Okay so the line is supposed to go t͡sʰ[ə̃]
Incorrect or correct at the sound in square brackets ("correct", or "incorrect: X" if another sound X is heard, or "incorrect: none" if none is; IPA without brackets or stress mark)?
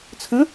correct